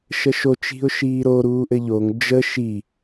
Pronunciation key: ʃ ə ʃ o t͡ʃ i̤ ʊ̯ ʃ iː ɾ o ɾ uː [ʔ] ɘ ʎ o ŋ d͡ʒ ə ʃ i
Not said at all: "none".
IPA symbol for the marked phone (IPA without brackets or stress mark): ʔ